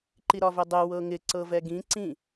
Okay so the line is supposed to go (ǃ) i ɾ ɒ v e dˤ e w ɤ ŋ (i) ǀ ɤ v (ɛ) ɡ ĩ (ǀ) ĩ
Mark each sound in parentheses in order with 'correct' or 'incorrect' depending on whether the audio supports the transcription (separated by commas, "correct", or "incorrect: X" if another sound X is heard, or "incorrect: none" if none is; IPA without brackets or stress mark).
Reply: correct, incorrect: ɪ, correct, correct